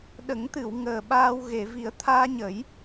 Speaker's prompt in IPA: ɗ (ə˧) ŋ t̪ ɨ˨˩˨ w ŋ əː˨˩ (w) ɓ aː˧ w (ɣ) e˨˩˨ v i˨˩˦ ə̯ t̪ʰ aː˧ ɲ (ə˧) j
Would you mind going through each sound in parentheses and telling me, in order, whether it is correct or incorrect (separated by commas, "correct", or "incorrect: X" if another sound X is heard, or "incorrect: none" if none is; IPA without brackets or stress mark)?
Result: incorrect: ə˨˩˦, incorrect: none, correct, incorrect: ə˨˩˦